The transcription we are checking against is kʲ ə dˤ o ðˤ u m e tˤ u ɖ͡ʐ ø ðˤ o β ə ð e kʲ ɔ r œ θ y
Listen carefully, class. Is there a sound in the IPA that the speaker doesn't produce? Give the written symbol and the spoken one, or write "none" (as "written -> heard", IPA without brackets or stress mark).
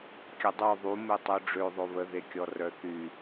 none